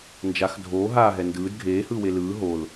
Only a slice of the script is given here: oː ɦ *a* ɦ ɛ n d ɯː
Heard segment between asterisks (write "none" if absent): aː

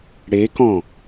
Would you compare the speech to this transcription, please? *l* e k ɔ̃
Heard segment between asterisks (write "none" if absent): ɽ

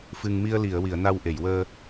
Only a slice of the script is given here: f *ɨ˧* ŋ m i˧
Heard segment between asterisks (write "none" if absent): ɨ˧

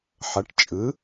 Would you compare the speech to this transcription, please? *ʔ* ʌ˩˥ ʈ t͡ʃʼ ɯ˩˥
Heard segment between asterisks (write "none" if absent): ħ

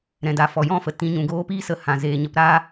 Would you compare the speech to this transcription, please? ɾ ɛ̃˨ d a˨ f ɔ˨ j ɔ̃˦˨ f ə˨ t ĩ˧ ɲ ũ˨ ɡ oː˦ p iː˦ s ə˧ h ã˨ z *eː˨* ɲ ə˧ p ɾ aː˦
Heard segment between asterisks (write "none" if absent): eː˨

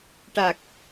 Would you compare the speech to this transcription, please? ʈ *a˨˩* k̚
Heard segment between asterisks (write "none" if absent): a˨˩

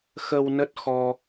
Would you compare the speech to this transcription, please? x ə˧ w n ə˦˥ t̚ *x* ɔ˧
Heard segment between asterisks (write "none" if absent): x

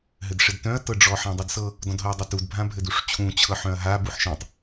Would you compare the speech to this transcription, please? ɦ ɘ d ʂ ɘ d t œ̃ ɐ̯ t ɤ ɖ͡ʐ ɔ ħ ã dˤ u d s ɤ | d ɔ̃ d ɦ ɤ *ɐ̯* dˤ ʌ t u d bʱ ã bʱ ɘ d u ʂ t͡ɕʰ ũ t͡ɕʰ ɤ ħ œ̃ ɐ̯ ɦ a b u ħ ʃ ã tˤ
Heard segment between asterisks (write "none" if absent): ɐ̯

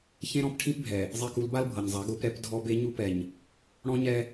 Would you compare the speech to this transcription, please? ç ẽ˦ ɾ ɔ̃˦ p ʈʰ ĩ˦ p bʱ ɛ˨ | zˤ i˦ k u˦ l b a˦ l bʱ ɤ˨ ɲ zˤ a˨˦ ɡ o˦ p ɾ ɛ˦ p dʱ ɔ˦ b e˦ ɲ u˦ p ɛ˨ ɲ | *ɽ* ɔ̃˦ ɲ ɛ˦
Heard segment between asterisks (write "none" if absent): ɽ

